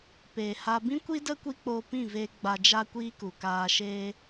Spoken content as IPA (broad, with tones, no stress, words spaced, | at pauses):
peː˨ha˧ bĩ˦kʷi˦də˦ kʷi˦k͡poː˧pĩ˦˨veː˧ ɡ͡ba˧d͡ʒa˦kʷiː˦ku˨ kaː˧ʃeː˦